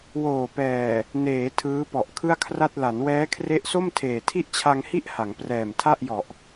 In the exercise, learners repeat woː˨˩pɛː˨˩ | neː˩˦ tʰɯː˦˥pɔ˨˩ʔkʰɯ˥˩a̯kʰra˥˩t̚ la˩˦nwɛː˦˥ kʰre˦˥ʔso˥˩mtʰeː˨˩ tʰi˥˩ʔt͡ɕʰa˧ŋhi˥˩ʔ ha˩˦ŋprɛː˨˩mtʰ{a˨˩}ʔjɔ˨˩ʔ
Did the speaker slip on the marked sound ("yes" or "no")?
yes